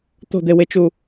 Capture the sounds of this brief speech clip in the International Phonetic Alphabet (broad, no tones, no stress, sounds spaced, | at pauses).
t̪ o̤ d̪ e w e t͡ʃ u